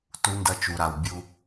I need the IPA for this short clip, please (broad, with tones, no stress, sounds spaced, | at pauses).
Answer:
t u˦ n d ɐ˦ t͡ʃ u˨ ɾ a˨ w bʲ u˦